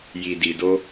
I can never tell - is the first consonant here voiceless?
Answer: no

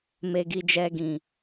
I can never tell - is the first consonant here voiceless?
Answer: no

